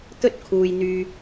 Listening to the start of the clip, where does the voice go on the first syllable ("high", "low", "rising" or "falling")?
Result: high